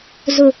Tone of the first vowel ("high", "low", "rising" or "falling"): low